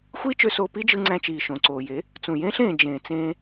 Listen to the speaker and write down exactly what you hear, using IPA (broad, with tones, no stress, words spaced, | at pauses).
xʷiː˦t͡ʃø˧soː˧ pi˦d͡ʒɯ˧ŋ͡ǀæ̃˧ t͡ʃiː˨ʃõ˨ǀoː˨je˨˦ | t͡sũ˨jẽː˦ɬẽː˨ d͡ʒẽː˨t͡sẽː˧